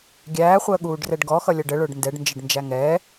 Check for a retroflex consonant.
present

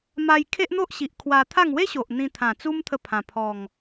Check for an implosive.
absent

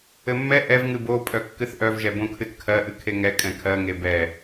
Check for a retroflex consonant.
absent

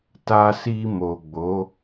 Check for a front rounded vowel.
absent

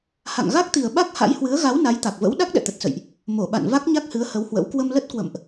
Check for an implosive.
present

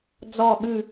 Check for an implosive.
present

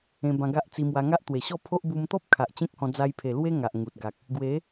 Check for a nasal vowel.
present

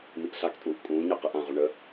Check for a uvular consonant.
present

